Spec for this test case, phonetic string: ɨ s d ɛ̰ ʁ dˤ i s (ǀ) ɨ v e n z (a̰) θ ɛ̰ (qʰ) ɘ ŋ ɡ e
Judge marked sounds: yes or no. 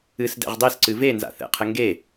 yes, yes, yes

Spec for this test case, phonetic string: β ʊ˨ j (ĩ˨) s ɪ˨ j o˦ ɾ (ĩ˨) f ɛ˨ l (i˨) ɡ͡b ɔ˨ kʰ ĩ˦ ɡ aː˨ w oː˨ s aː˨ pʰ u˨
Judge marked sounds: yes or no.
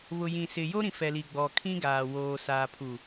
yes, yes, yes

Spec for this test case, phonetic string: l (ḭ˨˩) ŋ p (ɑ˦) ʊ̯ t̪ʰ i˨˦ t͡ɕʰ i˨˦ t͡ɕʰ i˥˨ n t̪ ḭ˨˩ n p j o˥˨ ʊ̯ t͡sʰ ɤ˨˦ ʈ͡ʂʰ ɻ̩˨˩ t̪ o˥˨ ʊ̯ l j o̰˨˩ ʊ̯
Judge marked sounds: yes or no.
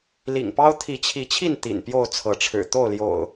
yes, yes

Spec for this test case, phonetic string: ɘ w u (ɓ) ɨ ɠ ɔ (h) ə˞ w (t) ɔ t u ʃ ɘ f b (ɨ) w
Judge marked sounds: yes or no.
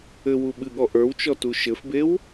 yes, no, no, no

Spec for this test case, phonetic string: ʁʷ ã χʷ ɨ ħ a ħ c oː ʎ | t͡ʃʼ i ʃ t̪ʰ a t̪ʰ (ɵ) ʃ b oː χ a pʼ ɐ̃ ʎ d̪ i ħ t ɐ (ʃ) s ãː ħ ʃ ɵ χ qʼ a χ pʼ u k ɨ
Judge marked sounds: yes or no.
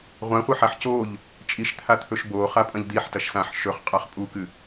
yes, yes

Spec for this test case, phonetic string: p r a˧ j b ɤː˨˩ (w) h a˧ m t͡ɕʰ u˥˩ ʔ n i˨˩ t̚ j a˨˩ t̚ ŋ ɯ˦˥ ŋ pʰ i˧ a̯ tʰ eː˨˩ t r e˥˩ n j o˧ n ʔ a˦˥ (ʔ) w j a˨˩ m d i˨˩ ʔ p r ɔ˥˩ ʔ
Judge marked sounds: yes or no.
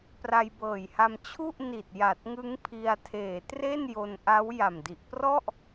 no, no

